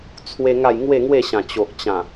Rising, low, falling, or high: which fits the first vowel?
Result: high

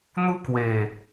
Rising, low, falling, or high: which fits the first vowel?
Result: high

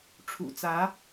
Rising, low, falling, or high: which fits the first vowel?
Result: low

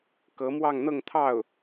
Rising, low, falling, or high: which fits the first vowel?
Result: rising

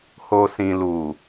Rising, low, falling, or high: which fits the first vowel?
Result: low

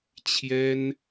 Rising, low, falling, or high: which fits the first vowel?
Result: high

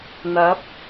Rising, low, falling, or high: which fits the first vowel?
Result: rising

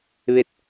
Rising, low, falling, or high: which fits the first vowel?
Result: falling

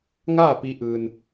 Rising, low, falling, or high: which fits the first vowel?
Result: falling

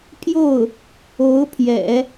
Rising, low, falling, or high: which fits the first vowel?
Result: falling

